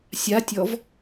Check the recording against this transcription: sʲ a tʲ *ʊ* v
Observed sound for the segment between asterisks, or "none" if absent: ɔ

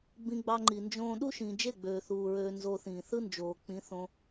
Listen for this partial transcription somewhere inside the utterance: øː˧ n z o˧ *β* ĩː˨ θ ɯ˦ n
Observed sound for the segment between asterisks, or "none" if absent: θ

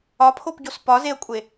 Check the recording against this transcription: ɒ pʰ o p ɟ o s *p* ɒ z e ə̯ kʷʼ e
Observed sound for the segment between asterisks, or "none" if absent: p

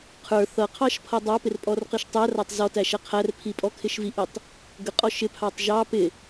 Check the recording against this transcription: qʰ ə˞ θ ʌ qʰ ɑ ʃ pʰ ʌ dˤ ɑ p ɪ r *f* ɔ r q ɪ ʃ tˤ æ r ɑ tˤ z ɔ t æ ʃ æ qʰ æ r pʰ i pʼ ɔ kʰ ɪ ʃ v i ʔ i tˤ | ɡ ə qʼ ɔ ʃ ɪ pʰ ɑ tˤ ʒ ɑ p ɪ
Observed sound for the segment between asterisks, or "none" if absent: pʼ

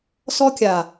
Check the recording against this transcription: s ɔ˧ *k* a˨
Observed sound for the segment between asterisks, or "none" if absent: kʲ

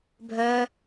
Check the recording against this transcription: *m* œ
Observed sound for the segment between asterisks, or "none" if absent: bʱ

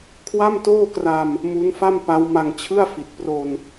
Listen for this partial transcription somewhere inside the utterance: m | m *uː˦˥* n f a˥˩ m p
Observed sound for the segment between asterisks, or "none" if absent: u˦˥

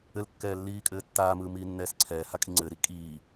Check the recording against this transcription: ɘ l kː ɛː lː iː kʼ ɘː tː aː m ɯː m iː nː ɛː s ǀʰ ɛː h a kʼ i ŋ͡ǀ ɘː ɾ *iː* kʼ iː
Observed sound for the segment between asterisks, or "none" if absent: i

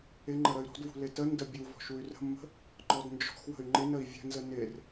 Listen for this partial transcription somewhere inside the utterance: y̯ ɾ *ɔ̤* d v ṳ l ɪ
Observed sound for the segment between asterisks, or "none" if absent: ɔ̤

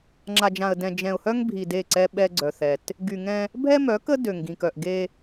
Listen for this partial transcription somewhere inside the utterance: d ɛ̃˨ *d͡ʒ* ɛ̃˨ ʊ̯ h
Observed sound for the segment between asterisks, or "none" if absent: d͡ʒ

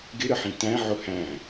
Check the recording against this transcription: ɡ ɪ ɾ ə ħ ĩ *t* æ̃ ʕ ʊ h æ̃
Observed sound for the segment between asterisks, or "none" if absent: t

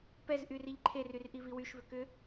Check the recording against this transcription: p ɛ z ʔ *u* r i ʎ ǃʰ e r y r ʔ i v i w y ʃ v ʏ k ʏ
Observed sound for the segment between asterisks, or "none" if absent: y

